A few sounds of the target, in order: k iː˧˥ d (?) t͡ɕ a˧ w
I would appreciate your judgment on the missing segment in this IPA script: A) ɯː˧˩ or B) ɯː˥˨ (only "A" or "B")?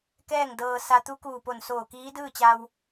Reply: B